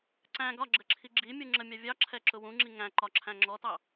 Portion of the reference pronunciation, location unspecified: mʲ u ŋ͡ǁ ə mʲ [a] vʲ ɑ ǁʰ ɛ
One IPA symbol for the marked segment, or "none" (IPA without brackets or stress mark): ɑ